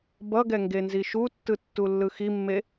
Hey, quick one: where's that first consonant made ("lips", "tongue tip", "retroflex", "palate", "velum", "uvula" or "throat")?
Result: lips